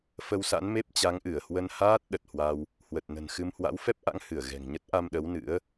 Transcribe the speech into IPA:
f ə˧ w s a̰˧˥ n m e˦˥ p̚ t͡ɕ a˨˦ ŋ ʔ ɨ˧˩ ə̯ h w ə˧ n h aː˦˥ t̚ ɗ ə˨˩ t̚ h w a˧ w | h w ə˨˩ t̚ n ə̤˨˩ n x ɨ˧ m h w a̰˧˥ w f ɛ˦˥ p̚ ʔ a̰˧˥ ŋ h ɨ˧˩ ə̯ ɣ ɛ̤˨˩ ŋ ɲ ə˦˥ t̚ ʔ a˧ m ɗ ə˨˦ w n ɨ̰˧˥ ə̯

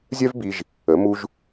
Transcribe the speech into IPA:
zʲ œ˥ v b i˧ ʒ | ə˩˧ m u˧ ʒ

